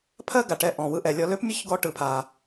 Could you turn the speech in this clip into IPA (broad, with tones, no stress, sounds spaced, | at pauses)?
pʰ ɜ˥ ɡ a˩ ʈ ɛ˧ ʔ ɔ̃˩ w ɯ˧ ʔ ɛ˩ lʲ ɔ˧ l ø˥ p mʲ ʌ˥ ç ɡ ɔ˧ ʈ ɯ˩ pʰ a˩